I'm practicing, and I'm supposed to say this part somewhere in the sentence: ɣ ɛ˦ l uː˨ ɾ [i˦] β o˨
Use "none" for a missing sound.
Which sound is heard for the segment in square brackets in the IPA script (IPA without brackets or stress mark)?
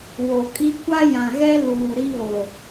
i˦